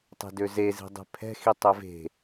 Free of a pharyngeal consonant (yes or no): yes